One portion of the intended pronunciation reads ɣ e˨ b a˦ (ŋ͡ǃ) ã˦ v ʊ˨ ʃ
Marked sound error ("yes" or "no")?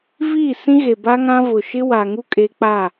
yes